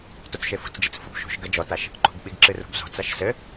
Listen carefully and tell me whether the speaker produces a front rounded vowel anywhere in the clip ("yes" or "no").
no